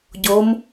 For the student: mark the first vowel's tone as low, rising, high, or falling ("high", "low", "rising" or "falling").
rising